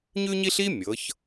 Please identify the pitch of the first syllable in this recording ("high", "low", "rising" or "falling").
high